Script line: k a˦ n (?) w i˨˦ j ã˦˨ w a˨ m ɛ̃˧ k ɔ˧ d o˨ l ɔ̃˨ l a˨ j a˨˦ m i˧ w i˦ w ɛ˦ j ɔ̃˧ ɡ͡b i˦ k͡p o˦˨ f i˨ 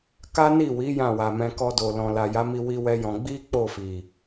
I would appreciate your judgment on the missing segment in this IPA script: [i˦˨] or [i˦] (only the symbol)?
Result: i˦˨